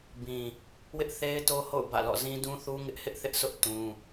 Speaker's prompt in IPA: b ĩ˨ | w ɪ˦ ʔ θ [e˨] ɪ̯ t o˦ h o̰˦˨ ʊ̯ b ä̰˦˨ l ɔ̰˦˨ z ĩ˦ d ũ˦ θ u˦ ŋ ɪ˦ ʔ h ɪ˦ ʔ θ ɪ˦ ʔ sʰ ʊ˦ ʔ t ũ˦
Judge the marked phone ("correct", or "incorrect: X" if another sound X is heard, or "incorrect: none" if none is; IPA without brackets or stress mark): incorrect: e˦